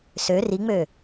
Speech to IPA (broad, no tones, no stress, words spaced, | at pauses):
sø riŋ͡mø